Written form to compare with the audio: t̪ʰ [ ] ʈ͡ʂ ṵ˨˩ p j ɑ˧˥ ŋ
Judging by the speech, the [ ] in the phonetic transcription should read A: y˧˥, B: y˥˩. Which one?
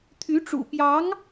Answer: A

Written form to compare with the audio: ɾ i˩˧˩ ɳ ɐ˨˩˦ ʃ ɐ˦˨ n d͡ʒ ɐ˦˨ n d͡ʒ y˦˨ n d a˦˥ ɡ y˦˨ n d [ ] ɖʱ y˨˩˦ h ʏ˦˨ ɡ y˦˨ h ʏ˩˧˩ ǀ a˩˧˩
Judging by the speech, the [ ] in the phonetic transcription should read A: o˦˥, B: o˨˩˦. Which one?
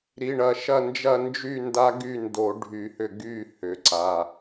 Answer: B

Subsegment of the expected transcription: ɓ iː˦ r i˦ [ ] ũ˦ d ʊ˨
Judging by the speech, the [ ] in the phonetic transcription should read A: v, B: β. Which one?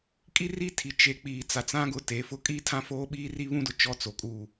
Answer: B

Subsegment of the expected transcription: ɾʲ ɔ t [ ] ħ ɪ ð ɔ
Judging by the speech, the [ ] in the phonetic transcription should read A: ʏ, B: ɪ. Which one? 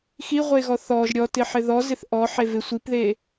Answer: B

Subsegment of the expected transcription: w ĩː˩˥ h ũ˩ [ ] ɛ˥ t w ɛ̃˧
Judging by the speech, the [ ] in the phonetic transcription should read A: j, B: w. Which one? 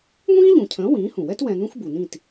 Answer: B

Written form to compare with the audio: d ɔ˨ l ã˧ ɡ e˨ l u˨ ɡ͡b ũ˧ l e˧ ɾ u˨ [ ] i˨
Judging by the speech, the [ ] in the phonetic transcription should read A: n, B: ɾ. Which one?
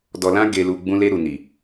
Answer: A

